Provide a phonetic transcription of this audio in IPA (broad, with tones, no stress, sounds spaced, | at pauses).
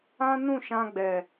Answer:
ã˦ n ũ˦˨ ʃ ã˧ ɡ͡b ɛ˨